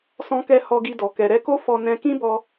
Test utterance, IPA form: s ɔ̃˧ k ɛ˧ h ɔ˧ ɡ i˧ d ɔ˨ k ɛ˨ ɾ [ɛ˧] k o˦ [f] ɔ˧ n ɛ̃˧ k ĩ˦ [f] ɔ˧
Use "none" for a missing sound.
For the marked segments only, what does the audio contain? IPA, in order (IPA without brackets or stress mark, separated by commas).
ɛ˧, f, b